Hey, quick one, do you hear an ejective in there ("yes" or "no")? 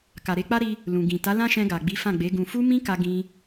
no